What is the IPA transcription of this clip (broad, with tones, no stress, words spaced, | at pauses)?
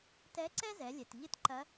tɛ˧˥ǀɛ˥zɛ˩˧lʲɛ˩t ʎɨ˥tǃɐ˧˥